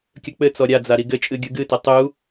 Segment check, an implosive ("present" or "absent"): absent